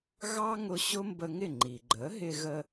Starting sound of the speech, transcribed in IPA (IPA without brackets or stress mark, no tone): ɣ